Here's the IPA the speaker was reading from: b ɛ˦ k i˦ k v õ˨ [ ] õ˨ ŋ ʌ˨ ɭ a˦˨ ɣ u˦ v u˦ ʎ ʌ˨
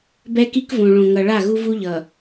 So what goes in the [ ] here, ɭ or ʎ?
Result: ɭ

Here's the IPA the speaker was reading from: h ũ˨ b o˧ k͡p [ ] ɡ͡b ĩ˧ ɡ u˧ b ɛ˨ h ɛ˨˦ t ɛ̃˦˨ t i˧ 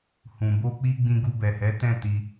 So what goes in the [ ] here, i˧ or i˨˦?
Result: i˧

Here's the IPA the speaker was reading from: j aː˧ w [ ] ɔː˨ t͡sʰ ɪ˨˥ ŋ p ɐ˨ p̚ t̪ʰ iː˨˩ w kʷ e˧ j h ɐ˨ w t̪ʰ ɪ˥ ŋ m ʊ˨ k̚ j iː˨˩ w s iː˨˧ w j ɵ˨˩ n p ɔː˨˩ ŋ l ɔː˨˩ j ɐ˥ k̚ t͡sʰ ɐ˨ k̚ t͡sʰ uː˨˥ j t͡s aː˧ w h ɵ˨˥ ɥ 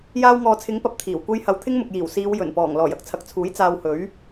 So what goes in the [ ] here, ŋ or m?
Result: ŋ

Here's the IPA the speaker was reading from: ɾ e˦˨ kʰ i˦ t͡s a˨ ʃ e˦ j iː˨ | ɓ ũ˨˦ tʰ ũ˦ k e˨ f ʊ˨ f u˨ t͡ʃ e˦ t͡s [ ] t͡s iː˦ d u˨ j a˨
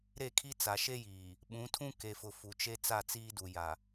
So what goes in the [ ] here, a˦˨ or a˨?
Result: a˦˨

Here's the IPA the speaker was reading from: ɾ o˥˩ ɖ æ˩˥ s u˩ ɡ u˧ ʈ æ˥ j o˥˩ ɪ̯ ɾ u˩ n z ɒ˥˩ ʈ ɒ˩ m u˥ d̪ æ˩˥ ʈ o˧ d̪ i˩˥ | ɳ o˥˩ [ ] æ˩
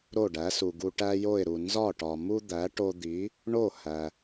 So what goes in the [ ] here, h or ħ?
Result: h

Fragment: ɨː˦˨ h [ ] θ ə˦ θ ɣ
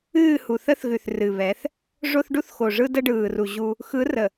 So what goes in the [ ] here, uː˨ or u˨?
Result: u˨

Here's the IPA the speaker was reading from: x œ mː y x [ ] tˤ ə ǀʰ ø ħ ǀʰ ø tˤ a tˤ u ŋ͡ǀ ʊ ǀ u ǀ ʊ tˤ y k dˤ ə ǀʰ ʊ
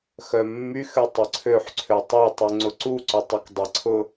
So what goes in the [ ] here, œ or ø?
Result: ø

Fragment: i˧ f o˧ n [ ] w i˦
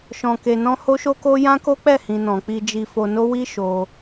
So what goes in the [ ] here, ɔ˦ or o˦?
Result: o˦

